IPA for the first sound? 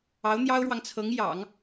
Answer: ɑ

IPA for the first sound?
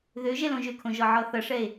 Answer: ð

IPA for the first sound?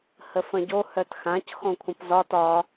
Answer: h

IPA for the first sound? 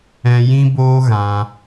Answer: ɛ̃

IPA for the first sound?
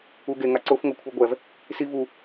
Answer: u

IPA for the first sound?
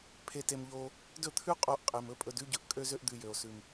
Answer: pʰ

